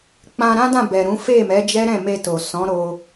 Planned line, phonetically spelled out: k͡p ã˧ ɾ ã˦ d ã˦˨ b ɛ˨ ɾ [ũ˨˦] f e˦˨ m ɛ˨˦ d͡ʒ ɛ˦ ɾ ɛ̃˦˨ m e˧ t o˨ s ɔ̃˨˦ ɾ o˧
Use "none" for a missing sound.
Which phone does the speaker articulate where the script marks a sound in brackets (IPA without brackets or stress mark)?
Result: ũ˨˦